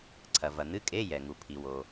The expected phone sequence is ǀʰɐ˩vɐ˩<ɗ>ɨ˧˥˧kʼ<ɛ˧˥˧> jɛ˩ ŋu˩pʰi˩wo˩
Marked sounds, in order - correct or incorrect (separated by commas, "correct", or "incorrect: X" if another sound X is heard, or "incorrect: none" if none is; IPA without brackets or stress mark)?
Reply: incorrect: n̪, incorrect: e˧˥˧